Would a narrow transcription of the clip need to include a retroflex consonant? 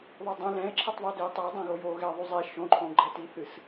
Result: no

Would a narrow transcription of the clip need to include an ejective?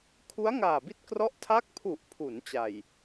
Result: no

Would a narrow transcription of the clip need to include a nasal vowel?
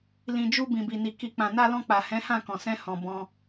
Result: yes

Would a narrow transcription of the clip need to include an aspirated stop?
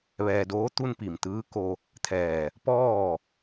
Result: yes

